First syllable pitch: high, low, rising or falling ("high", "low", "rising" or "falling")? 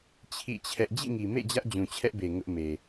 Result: falling